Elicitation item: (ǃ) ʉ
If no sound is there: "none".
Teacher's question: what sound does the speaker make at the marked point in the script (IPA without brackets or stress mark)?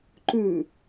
ǃ